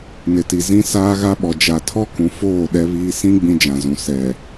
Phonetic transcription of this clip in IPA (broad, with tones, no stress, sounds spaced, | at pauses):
n ɪ˨ t i˨ z ĩ˦ s aː˦ ɣ a˦ ɓ ɔ˨ d͡ʒ a˨ tʰ ɔ˦ k ũ˨ f oː˦˨ ɗ ɛ˦ β iː˦ s ĩ˦ ɡ͡b ĩ˦ d͡ʒ ã˨ z ũ˨ s ɛ˨